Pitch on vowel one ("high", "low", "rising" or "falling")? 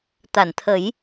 low